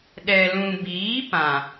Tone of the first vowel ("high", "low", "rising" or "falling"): low